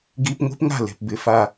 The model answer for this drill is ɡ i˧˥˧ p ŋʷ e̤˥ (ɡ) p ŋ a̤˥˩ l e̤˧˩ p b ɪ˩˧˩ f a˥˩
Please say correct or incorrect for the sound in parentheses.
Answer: incorrect